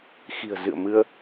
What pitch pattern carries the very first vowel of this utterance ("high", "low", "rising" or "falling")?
low